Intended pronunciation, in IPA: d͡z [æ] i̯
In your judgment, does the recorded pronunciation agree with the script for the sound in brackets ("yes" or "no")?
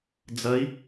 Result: no